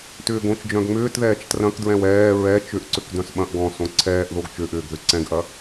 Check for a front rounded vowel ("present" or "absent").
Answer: present